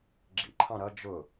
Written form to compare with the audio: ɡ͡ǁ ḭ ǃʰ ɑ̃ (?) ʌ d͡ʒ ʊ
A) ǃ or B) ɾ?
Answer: B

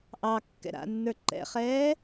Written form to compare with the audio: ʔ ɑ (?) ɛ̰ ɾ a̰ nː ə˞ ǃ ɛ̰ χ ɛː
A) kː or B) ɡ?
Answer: A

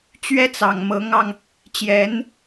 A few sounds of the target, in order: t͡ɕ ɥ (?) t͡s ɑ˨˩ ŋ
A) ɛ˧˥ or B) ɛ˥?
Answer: B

